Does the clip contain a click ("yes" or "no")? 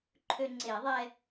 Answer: yes